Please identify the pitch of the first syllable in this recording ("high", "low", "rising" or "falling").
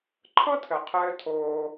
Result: high